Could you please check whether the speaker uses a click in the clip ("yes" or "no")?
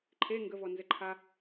yes